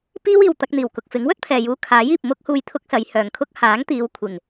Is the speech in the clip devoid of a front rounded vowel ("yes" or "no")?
no